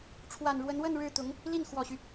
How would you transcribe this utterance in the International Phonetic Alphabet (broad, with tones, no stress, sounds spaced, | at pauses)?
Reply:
ʈ͡ʂʰ w a˨˩ n ɻ w ə˧˥ n w ə˥˧ n ɻ ɻ̩˥˩ t̪ ʊ˧˥ ŋ | l i˥˩ n x w ɔ˨˩ ɕ y˦